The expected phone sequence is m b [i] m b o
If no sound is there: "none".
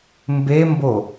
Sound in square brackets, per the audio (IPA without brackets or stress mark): e